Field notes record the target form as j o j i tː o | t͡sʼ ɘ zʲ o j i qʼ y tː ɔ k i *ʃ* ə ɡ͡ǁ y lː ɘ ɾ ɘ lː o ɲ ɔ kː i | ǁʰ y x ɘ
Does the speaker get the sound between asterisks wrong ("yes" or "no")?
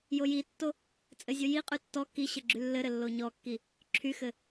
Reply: yes